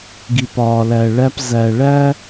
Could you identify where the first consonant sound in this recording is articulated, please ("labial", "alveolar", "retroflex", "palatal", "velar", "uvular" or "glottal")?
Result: velar